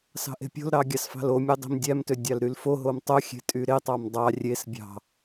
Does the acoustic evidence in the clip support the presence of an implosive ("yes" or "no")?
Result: no